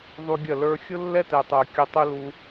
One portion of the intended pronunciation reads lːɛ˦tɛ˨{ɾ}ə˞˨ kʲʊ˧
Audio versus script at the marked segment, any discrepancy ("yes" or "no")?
yes